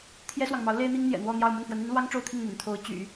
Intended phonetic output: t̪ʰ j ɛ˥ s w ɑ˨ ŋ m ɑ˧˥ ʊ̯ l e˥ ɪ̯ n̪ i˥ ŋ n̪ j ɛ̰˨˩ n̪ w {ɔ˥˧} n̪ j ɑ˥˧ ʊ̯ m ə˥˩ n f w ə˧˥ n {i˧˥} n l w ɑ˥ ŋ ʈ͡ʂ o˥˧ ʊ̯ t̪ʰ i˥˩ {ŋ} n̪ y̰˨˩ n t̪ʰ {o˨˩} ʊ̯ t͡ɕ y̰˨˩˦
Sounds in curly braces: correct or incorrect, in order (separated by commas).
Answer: correct, correct, correct, incorrect